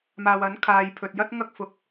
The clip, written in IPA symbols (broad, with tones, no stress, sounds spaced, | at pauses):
m aː˨ w ɐ˨˥ n kʰ aː˨ j pʰ ɵ˨ t̚ j ɐ˥ t̚ ŋ ɐ˥ k̚ f ʊ˨ k̚